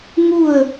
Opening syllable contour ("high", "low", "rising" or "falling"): falling